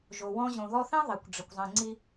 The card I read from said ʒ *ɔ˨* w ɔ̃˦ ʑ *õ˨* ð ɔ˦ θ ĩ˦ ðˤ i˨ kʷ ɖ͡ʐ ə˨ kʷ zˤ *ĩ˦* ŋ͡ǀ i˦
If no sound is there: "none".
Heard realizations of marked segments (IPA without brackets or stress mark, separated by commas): o˨, õ˨, ĩ˨